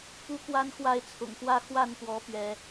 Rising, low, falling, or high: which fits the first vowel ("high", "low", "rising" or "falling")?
high